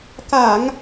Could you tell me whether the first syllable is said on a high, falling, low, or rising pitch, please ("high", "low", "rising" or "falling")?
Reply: low